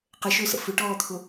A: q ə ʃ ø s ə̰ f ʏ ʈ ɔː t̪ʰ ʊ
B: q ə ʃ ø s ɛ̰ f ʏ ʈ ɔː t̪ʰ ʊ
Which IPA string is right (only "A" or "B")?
A